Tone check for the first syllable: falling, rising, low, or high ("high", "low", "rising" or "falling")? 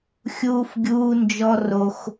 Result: high